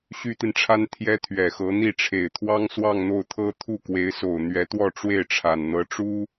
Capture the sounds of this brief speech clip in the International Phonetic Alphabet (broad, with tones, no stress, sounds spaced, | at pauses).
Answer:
ɕ y˥ t̪ i˨ n ʈ͡ʂʰ a˥ n t̪ʰ j ɛ˥ t̪ʰ ɥ ɛ˨˩ x ɤ˧˥ n̪ i˥˩ ʈ͡ʂʰ e˨˩ ɪ̯ t̪ʰ w ɑ˥ ŋ s w ɑ˥˧ ŋ n̪ o˥˩ ʊ̯ t̪ʰ ɤ˥ t̪ʰ u˥˩ k w e˧˥ ɪ̯ s o˨˩ ʊ̯ n̪ ɥ ɛ˧˥ t̪ w ɔ˥˧ ʈ͡ʂ w e˥˩ ɪ̯ ʈ͡ʂʰ a˨˩ n n̪ ɤ˧˥ ʈ͡ʂ u˥